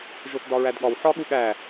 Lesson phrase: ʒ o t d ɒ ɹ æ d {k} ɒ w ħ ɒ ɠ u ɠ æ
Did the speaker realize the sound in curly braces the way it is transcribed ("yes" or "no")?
no